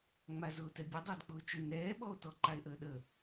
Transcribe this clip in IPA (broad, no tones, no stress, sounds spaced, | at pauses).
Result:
ŋ͡m a z ʊː t ɛ bʲ ʊ dˤ ʊː d k͡p ʊː t͡ʃ ʊ n ɛː ɓ ɔ o̯ t ɔ ǃ a e̯ ʔ əː ɗ ə